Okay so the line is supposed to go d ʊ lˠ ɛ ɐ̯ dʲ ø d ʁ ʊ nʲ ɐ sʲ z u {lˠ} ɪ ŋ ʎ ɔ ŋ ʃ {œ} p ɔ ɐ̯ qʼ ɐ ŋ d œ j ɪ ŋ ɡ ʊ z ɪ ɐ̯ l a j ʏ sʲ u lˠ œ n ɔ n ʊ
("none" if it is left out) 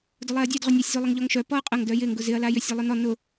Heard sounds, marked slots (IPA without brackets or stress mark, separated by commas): lˠ, œ